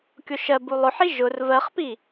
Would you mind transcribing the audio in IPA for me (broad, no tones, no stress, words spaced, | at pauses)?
kʲoʃɜbu lˠʊħi ʒʊr vɜχpi